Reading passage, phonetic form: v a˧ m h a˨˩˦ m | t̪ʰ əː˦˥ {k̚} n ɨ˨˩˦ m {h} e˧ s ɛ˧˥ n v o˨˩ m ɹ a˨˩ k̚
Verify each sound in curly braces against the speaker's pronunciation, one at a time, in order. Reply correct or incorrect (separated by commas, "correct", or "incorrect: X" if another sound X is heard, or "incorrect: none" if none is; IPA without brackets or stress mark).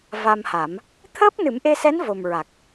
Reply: incorrect: p̚, incorrect: ʔ